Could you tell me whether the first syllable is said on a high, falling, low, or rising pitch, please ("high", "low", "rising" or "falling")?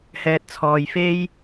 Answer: low